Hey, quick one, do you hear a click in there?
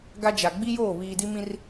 no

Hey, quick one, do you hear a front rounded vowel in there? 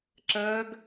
no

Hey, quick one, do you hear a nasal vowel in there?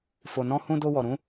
yes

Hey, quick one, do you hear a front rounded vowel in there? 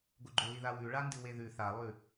no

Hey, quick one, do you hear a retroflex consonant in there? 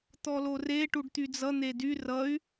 yes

